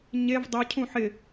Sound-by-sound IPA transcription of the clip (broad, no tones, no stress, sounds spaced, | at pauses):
ɲ e v dˤ ʊ cʰ ũ ħ ɪ